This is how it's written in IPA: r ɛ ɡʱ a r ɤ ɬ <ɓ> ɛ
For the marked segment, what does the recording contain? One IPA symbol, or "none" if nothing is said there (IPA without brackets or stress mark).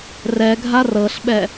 ɓ